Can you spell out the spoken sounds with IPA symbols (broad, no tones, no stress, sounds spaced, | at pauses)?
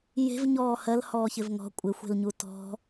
j e̤ v ɲ ɔː h ɜ l h ɔː ç ɪ v ŋ ɔ̤ kʷʼ ɪ xʷ e̤ l ɲ u t ɔ̤